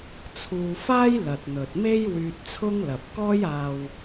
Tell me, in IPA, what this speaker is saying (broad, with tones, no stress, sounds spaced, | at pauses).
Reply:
t͡sʰ uː˧ f aː˥ j l ɐ˨ t̚ n̪ ɵ˨ t̚ m e˥ j w yː˧ t̚ t͡sʰ ʊ˥ ŋ l ɐ˨ p̚ k ɔː˥ j aː˨ w